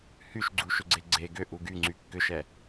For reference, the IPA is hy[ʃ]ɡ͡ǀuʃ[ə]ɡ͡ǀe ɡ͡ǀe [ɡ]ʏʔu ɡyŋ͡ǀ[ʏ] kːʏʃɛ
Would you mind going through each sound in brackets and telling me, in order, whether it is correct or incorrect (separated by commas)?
correct, incorrect, correct, incorrect